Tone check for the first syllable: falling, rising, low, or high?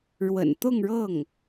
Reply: low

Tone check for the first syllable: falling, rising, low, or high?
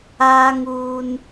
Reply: high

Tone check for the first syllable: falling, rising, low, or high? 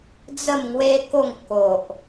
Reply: falling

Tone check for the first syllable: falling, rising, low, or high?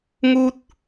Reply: high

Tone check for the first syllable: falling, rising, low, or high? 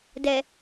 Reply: low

